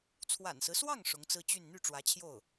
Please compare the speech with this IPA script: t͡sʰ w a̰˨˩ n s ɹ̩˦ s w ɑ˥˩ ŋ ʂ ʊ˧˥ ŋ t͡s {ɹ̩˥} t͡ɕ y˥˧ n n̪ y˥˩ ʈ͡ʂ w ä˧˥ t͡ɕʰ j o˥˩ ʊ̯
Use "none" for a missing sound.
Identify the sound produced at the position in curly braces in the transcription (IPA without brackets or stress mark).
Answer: ɹ̩˥